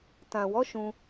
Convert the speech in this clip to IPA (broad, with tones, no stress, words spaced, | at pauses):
tã˨wɔ˨˦ ʃũ˧